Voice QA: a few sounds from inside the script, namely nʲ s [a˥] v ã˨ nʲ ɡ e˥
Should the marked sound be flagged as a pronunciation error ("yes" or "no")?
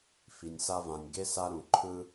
no